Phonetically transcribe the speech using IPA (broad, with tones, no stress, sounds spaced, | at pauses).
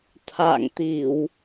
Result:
t̪ʰ a̰ː˧˨ ŋ t̪ i˧˩˨ w